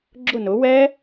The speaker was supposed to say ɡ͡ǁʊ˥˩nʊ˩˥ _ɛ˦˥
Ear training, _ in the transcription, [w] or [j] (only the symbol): w